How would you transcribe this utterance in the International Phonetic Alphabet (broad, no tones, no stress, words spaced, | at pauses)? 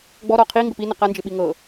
ɡ͡bɔɾɔ qʰiŋɡəp inə qand͡ʒɪɓi ŋɤ